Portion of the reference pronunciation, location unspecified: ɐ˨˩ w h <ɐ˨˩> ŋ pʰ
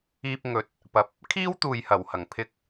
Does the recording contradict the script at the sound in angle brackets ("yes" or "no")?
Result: no